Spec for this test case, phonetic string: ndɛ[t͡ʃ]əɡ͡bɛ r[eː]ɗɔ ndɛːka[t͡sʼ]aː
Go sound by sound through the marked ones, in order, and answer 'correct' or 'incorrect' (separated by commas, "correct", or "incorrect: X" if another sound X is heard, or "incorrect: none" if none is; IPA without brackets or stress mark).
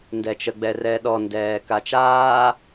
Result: correct, incorrect: ɛː, incorrect: t͡ʃ